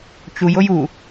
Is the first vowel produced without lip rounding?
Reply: no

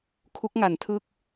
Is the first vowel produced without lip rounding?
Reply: no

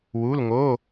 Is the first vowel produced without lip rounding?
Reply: no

